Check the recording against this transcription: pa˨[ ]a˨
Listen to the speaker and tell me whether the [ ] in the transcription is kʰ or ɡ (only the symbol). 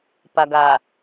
ɡ